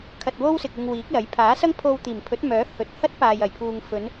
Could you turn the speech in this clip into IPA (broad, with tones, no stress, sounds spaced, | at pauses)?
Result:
kʰ ɐ˧ t̚ w o˥ w s ɪ˨ k̚ ɪ˧ ŋ w iː˨˥ k̚ l ɐ˨˥ j pʰ aː˨˥ s ɐ˥ ŋ pʰ o˧ w t̪ iː˨˩ m pʰ ɵ˨˥ t̚ m œː˨˥ h ɵ˨˥ t̚ h ɐ˥ t̚ p aː˨ j ɐ˨˩ j pʰ uː˨ ŋ f ɵ˨˧ n